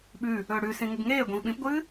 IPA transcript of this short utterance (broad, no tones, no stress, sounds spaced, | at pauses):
ɓ ʉ | ɵː ɽ ʉ s ĩ ŋ ɨ ɡ ŋ eː ɡʷ ĩ v ɓ ĩ p ɡʷ ɨː